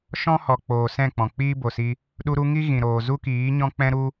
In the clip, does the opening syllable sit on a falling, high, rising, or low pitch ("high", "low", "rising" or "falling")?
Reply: high